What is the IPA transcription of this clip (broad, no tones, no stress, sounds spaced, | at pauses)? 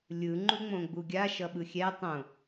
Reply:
lʲ ɯ ŋ͡ǃ u ŋ͡m õ ɡ͡b u ɡʲ a ʃ ʌ ɓ ɯ xʲ ɛ tˤ õ